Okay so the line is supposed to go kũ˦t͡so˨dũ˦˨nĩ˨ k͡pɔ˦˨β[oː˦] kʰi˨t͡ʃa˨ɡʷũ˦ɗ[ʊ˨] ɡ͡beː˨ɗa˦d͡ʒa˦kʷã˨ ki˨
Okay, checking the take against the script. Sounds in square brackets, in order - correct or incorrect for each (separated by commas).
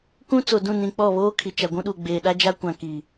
correct, incorrect